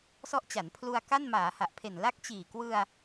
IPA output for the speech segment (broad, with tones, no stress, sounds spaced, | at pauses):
s ɔ˦˥ ʔ t͡ɕ a˩˦ n pʰ l u˧ a̯ k a˥˩ n m aː˩˦ h a˨˩ ʔ pʰ e˨˩ n l a˦˥ k̚ t͡ɕ iː˨˩ k w ɯ˧ a̯